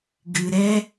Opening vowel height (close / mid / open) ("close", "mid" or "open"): close